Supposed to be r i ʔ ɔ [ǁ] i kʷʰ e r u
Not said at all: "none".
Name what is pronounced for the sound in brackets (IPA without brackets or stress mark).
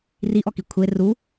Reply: k